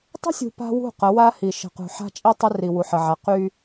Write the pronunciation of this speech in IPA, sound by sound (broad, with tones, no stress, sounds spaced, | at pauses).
tˤ ə̤˦ sʲ ṳ˨ p a̤˦ w ṳ˦˨ q ə˨˦ w a˦ h i˨ ʃ ə̤˨ q ṳ˨ ħ a̤˦ t͡ʃʼ i˦ tˤ ə˦ r i˨ w u˨ ħ ə˨ ʕ a˨ q y˦